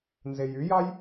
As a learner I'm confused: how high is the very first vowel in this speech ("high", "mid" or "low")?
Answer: mid